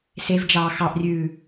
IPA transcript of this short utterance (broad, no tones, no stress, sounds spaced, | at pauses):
s e v d͡ʒ ɑː x ɑ ʔ rʲ ʉː